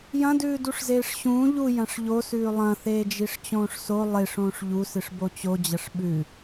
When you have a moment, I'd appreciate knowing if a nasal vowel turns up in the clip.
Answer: yes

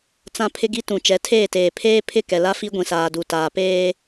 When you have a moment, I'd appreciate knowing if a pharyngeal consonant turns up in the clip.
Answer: no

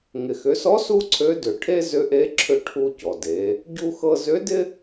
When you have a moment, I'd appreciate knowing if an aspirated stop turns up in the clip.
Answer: yes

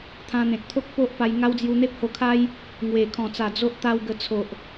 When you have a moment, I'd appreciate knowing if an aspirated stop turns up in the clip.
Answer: yes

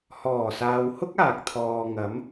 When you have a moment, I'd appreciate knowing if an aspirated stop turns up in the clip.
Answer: yes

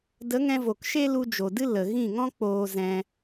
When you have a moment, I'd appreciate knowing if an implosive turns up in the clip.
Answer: no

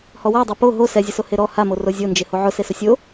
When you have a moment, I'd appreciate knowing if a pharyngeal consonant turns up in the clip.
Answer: yes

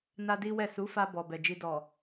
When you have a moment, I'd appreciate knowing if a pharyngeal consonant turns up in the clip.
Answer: no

